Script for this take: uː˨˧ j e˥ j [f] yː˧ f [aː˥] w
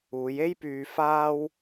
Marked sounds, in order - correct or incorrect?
incorrect, correct

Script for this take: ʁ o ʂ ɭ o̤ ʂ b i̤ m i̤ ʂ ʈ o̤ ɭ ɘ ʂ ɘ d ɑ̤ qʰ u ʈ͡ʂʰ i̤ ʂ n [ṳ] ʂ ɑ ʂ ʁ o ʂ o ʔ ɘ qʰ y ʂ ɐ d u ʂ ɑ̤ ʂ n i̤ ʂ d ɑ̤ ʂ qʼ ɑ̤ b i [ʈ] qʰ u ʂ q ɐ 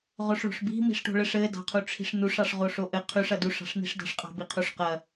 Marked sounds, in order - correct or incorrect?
incorrect, incorrect

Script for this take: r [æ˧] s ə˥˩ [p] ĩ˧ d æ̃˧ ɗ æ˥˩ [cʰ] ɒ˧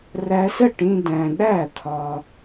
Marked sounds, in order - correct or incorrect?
correct, incorrect, incorrect

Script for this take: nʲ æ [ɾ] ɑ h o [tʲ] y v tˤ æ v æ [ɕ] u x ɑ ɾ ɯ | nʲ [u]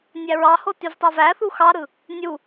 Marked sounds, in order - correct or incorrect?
incorrect, incorrect, incorrect, correct

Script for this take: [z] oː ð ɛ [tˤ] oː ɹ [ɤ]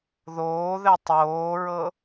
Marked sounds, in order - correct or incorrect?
incorrect, correct, correct

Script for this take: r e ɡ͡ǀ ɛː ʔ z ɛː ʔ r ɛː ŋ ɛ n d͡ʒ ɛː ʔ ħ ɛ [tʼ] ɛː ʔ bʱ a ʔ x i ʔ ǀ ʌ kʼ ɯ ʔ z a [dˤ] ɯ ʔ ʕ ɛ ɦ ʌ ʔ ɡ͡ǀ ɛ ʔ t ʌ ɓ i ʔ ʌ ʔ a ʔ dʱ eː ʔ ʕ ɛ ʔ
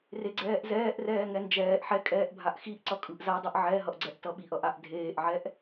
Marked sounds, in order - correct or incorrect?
incorrect, correct

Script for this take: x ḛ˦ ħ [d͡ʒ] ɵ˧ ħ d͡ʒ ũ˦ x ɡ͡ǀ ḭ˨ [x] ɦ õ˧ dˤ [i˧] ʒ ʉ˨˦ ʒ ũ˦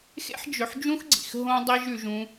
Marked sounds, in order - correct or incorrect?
correct, correct, correct

